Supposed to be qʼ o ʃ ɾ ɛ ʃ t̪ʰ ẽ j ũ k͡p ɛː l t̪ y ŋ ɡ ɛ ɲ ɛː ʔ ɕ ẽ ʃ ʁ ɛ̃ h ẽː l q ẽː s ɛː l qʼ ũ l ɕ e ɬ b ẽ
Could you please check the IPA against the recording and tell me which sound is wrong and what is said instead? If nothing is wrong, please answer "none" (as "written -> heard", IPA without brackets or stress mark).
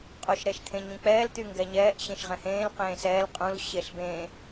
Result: j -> ɲ